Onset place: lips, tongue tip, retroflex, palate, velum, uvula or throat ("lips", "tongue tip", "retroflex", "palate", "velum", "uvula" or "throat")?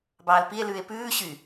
lips